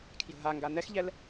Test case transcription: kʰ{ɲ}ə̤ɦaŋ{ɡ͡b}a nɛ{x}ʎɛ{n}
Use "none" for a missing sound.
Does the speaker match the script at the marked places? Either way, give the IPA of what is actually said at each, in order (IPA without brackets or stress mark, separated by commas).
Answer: j, ɡ, x, l